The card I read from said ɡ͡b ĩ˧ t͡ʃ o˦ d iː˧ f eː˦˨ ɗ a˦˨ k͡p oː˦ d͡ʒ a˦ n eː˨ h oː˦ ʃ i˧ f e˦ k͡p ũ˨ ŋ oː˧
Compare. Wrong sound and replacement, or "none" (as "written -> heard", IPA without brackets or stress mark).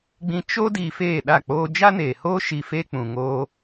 none